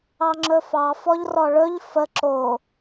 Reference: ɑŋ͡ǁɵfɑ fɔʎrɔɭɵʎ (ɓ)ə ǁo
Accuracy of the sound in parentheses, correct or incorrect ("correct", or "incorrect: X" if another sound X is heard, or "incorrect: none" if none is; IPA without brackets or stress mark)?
incorrect: f